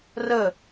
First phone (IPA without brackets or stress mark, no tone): r